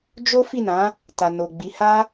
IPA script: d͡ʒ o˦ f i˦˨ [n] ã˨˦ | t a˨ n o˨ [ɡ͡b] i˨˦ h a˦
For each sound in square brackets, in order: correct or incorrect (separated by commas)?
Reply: correct, correct